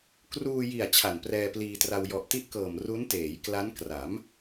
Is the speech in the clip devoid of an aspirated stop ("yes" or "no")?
no